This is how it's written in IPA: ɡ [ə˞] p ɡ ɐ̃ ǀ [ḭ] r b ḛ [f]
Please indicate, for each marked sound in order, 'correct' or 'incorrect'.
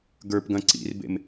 correct, correct, incorrect

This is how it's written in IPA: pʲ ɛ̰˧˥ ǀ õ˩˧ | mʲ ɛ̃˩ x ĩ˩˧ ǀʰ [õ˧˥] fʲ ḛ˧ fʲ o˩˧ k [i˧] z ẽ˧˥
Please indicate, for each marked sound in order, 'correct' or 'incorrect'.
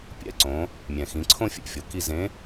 incorrect, correct

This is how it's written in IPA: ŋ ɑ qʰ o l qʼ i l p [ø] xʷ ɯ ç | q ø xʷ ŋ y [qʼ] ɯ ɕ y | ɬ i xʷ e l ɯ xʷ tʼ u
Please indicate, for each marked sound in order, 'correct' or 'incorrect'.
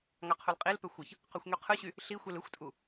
correct, incorrect

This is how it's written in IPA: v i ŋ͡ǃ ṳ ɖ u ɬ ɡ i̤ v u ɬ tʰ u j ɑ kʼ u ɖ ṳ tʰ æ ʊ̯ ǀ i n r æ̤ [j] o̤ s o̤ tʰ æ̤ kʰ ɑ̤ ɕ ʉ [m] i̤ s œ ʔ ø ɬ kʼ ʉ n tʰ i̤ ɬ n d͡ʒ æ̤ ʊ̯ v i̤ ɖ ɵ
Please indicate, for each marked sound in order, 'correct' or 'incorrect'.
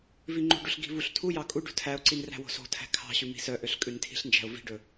incorrect, correct

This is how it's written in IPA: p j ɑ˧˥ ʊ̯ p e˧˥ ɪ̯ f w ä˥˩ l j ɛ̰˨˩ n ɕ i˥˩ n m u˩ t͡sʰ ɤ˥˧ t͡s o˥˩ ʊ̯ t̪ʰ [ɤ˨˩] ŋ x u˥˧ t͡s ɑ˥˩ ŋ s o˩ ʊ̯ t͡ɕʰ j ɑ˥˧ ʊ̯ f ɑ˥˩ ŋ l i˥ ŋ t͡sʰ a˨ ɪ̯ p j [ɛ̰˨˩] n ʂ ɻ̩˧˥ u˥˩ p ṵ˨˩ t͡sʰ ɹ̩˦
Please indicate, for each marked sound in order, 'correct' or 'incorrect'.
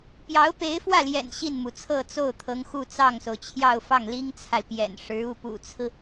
incorrect, correct

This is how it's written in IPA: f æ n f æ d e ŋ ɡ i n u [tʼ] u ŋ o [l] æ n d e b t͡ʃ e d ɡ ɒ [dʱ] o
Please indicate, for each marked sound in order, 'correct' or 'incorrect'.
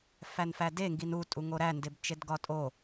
correct, incorrect, incorrect

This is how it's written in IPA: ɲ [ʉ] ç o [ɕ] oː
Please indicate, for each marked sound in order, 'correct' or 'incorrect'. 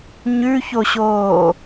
correct, correct

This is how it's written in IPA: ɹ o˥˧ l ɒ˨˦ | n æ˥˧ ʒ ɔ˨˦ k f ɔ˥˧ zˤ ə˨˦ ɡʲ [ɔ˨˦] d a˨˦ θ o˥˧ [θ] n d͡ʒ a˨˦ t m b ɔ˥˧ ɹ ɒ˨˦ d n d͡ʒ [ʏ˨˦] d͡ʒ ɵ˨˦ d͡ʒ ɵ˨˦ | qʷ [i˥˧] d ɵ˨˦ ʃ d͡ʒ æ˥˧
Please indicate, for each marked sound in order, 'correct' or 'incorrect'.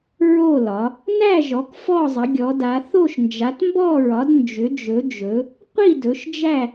correct, incorrect, correct, correct

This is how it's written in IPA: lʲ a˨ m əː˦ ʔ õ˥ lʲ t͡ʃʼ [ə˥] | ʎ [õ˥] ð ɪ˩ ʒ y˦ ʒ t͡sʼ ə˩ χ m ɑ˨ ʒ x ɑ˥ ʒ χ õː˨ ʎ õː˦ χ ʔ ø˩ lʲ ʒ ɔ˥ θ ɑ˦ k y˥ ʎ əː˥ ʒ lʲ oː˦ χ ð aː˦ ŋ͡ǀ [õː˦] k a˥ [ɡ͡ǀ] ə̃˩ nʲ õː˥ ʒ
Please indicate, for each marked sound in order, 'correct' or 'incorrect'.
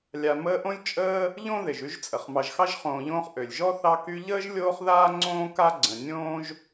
incorrect, correct, incorrect, correct

